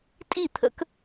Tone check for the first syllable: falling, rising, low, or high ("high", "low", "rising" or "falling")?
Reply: falling